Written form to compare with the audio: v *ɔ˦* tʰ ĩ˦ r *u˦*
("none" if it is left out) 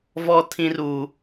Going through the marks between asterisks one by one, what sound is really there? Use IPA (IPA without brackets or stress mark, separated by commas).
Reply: ɔ˦, u˦